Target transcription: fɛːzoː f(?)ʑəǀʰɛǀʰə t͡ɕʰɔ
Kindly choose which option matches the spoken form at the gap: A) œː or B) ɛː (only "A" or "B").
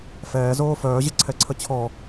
A